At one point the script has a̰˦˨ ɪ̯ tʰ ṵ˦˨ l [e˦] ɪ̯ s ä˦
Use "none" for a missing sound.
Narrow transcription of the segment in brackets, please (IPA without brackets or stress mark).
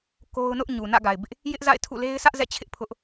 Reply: e˦